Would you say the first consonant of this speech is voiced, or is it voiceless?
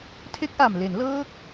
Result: voiceless